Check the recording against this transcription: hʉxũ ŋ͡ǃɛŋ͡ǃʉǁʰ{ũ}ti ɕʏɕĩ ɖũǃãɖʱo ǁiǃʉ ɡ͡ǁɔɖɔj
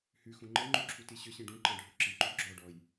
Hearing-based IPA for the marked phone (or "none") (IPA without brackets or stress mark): u